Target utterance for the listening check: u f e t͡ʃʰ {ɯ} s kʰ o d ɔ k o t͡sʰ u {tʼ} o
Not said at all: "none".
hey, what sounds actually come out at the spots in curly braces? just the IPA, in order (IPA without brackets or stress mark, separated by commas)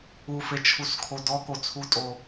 u, tʼ